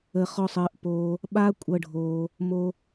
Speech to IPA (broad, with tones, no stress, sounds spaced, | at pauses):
ə˧ χ ɔ˧ sˤ əː˨˦ ʔ p oː˧ | ɓ a˦ kʷʼ ɤ˦ ɖʱ oː˧ | m o˦